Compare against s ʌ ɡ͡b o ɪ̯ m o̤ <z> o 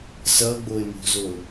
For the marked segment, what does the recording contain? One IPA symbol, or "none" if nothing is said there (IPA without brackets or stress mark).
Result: z